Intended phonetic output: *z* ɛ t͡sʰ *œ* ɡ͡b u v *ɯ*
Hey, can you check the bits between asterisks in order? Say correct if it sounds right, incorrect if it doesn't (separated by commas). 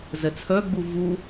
correct, correct, incorrect